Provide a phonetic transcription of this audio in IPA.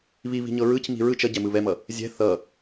β i β i̤ ɲ ɤ ɹ ɯ c m i̤ ɹ ɯ t͡ʃ ʌ ɟ ɛ m ɯ β ɛ m ʌ | zʲ ɛ̤ θ ʌ

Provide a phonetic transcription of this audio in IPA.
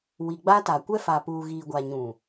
w i˨ ɡ͡b a˦ t a˨ kʷ ɛ˦ f a˨ p uː˨ ɣ iː˨ ɡʷ a˨ ɲ ũ˨

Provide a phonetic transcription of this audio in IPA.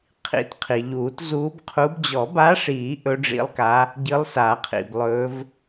qʰ ḭ˨˩˦ t qʰ i˩ ʎ uː˨˩˦ t z uː˧˥ b qʰ u˧˥ b d͡ʑ ɔ˨˩˦ b a˧˥ ʂ iː˨˩˦ ʔ ɵ˧˥ ɖ͡ʐ ḭ˧˥ lˠ k a˧˥ | ɟ ɨ˧˥ lˠ s a˨˩˦ qʰ ḭ˩ b lˠ ɵː˧˥ v

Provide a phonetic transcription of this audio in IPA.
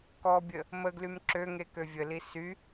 k ɔ bʲ ə | m ə ɡ l y m ǁ ø ŋ e k ø vʲ ə l i s y

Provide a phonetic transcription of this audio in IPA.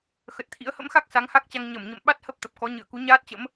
x ə˨˩ t̚ t̪ʰ ḭ˧˥ ə̯ h ə̰˧˥ m x a˦˥ k̚ s a˨˦ ŋ h a˦˥ k̚ t͡ɕ a˧ ŋ ɲ ə˧˩ m ɲ ə̰˧˨ m ɓ a˦˥ t̚ h ə˦˥ p̚ t̪ ə˨˩ p̚ k ɔ˨˦ ɲ ɨ˧˩ ə̯ k u˨˦ ɲ aː˦˥ t̚ t͡ɕ ə̰˧˥ m

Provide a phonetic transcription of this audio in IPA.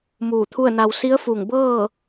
m uː˧˩ t̪ʰ u˥˨ ə̯ n a˧ w s i˧˥ ə̯ f u˧˩ ŋ b ɤː˥˨

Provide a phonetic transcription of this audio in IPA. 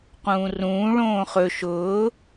q ũː r ũː ɭ õː χ ɵ ʃ ʊː

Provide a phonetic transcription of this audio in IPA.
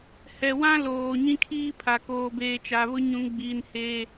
h ɛ˨ w ã˦ l oː˨ ɲ ĩ˦ kʰ iː˦ pʰ a˨ k oː˨ b eː˨ t͡ʃ a˨ β ʊ˦ ɲ ũ˨ ŋ ɡ͡b iː˨ n h eː˦

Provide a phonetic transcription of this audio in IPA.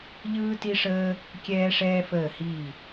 ʎ ɯː˦ t i˦ ʂ əː˦ | kʲ ɛː˦ ʂ ɛː˦ f əː˦˨ h i˦˨

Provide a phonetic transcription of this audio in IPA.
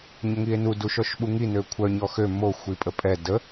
ɲ ə ŋ i e̯ n u d u ʃ ɔ ʃ ɓ u ŋ i n ø kʷʰ œ ɲ ɔ x ø m o xʷ i pʼ ə pʼ ɛ d ə

